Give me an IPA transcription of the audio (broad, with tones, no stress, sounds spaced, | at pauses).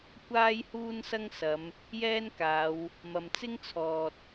kʷ aː˥ j h uː˥ n s ɐ˥ ŋ s ɐ˨˧ m | j ɛː˥ n k aː˨˧ w | m ɐ˨ m t͡s ɪ˥ ŋ t͡sʰ ɔː˨ t̚